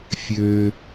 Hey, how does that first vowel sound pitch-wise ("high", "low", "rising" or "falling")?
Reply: low